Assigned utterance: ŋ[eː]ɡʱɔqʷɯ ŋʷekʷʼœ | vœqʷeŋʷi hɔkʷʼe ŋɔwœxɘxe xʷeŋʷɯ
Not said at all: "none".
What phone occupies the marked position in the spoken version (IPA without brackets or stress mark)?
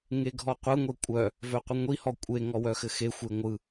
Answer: e